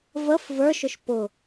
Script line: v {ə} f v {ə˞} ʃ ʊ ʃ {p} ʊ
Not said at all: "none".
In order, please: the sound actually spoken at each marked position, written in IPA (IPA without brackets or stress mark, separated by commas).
ə, ə˞, p